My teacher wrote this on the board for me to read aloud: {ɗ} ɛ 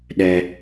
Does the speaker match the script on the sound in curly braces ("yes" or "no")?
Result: yes